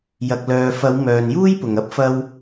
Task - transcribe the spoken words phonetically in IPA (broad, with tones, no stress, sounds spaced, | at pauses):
j ɐ˨ k̚ l œː˨ f ɐ˨˧ w m œː˨ n j uː˥ j p ʊ˨ ŋ ɐ˥ p̚ f ɐ˧ w